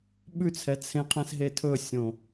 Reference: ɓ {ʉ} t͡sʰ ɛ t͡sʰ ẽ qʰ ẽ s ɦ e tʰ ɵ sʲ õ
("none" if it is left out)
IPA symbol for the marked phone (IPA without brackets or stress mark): ʉ